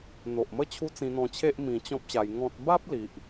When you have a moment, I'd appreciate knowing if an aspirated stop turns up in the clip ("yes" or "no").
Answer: yes